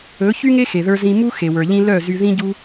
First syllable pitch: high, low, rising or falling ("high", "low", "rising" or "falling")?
rising